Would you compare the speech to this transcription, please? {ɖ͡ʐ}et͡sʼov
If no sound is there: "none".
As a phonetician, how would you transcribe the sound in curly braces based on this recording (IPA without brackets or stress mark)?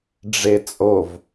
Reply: ɖ͡ʐ